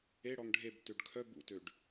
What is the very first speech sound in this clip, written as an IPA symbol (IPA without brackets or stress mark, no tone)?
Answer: e